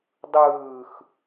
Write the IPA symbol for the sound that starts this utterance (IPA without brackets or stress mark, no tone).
dˤ